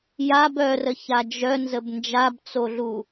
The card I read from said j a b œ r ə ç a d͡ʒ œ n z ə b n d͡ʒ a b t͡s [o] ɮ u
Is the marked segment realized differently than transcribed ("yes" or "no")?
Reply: no